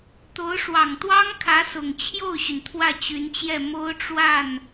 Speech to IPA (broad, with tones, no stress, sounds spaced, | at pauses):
t̪ o˧˥ ʊ̯ ʂ w ɑ˨˩ ŋ t̪ w ɑ˥ ŋ kʰ ä˧˥ s ʊ˨˩ ŋ t͡ɕʰ j o˥˩ ʊ̯ ɕ y˩ n t̪ʰ w ä˥˩ t͡ɕ y˧˥ n t͡ɕ j ɛ˥˩ m o˥ ʊ̯ ʈ͡ʂ w a˥˩ n